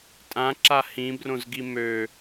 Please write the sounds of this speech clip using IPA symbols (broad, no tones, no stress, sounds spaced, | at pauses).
tʼ ã ǁ a h ĩ b r õ z ɡ i m ø